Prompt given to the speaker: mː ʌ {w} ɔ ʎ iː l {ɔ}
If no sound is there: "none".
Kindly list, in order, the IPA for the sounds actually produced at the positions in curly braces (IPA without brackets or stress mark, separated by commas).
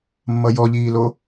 j, o